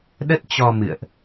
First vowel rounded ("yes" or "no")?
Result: no